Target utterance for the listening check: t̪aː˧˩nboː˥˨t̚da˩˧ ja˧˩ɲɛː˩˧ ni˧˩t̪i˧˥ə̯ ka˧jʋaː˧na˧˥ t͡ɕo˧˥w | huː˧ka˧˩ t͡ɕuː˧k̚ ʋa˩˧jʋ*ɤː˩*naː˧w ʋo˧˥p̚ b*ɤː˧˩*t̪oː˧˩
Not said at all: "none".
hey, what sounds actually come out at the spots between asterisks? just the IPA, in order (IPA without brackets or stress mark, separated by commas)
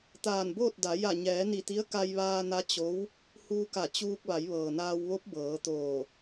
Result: ɤː˩, ɤː˩˧